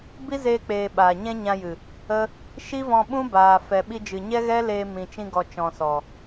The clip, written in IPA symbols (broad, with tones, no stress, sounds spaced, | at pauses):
b i˦ z eː˧ k͡p eː˨ ɓ aː˨ ɲ ɛ̃˦ ɲ ã˧ j ɨ˨ | ə˦ | ʃ i˦ v ɔ̃˧ ɓ ũ˦ b aː˨ f ɛ˨ ɓ i˧ d͡ʒ ɨ˨ ɲ ɛ˦ ɣ ɛ˦ l eː˧ m ĩ˨ t͡ʃ ĩ˧ ɡ ɔ˨ t͡ʃ ɔ̃˨ s ɔ˨